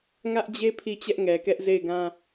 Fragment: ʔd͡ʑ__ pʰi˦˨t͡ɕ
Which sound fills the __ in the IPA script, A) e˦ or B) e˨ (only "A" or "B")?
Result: A